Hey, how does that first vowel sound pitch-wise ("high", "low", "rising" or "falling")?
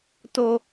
low